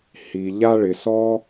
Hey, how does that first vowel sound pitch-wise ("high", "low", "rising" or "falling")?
low